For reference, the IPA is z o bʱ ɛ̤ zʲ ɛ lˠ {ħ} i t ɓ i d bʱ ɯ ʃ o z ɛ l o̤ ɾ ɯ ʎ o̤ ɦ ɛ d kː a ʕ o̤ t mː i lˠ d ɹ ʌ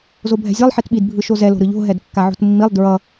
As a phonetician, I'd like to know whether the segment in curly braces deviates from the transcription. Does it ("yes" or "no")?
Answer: no